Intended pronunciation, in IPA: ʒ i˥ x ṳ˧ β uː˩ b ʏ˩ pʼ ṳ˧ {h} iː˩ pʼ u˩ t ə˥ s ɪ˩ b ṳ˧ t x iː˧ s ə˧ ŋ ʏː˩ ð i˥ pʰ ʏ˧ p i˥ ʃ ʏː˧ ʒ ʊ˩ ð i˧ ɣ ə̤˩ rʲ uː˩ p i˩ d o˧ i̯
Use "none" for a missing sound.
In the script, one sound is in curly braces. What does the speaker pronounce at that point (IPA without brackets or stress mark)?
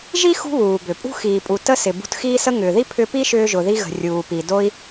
x